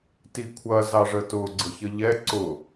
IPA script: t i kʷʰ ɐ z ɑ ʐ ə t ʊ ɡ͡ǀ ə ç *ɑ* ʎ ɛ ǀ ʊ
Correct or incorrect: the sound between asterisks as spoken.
incorrect: ə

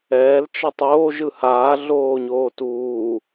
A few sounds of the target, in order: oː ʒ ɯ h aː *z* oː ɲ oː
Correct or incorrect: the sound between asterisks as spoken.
incorrect: ɮ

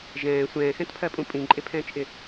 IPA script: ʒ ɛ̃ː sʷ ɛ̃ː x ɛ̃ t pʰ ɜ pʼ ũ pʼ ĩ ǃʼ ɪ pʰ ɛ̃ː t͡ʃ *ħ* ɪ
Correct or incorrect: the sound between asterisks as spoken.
incorrect: ʔ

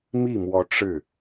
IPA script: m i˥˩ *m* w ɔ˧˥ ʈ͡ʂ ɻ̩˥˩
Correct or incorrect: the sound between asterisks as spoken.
correct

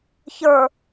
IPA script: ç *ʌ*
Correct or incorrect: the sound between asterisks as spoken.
incorrect: ə˞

